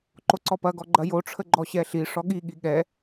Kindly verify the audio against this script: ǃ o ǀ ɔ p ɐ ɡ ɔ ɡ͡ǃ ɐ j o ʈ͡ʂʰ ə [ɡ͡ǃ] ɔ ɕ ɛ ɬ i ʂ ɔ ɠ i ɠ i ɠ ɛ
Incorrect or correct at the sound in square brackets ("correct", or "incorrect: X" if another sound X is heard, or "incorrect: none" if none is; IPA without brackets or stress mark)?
correct